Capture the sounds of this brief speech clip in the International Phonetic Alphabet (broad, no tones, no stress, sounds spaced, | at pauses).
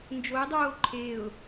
n d͡ʒ o ɪ̯ dˤ oː ǃʰ e ʊ̯